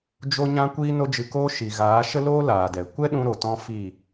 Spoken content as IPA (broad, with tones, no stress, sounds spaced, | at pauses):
d͡ʒ o˦ ɲ ã˦ kʷ iː˦ n o˦ d͡ʒ ɨ˧ k oː˦ ʃ i˨ ɣ aː˨˦ ʃ ə˦ l oː˦ l aː˨ d ɛ˨ kʷ ɛ˦ ɗ ũ˦ ɾ o˨ t ɔ̃˦ f i˦˨